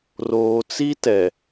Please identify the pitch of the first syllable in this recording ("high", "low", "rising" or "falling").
low